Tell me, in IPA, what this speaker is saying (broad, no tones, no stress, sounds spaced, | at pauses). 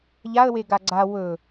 ʎ a ə̯ w e ɡ a ɡ͡ǀ a w ɵ